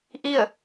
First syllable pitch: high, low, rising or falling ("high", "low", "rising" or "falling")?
falling